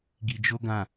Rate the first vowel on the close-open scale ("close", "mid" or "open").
close